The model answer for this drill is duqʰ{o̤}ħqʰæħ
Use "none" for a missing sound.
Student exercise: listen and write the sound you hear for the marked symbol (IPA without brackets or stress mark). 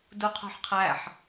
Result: o̤